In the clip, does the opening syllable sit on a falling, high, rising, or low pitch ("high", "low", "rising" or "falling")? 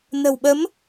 low